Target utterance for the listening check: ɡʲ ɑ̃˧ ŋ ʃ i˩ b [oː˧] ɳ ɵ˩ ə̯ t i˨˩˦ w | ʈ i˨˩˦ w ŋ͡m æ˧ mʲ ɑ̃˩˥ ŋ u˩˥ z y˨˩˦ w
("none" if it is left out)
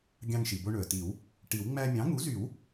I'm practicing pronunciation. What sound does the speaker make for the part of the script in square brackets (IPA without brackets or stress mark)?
o˧